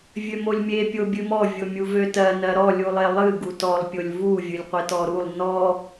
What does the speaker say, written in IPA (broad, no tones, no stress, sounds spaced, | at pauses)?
vʲ ø m o lʲ mʲ e pʲ o bʲ ɨ m ɔ vʲ o mʲ u v ø t ɜ n ɜ ɾ ɔ lʲ u lˠ e lˠ ɨ ɡ u t ɔ lˠ pʲ o lʲ v u vʲ ɨ lʲ qʷ e t ɔ ɾ u lˠ n ɔ